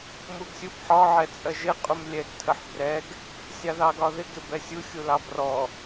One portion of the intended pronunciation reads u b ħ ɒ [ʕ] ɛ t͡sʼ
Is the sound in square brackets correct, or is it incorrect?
correct